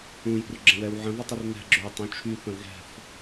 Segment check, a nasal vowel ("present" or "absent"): present